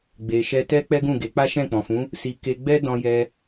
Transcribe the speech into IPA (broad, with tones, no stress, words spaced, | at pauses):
ɡ͡be˨ʃɛ˧ tɛ˦ k͡pɛ˦ɡũ˦˨ɡe˨˦ k͡pa˦ʃɛ̃˦˨k͡pɔ̃˨fũ˨˦ | si˧ ke˧ ɡ͡bɛ˦ dɔ̃˧jɛ˧